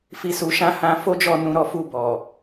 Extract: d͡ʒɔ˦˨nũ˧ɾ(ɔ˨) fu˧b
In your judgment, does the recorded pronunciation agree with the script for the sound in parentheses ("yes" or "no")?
no